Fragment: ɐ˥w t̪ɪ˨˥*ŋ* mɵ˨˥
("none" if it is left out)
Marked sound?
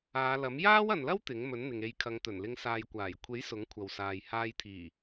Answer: ŋ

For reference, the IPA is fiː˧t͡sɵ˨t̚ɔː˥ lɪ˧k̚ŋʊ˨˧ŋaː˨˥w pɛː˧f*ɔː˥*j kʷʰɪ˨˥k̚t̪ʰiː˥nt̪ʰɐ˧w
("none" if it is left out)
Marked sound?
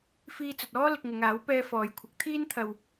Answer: ɔː˨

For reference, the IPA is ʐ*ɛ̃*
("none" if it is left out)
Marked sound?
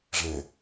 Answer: ɛ̃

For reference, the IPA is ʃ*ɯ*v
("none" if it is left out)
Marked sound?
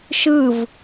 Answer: ɯ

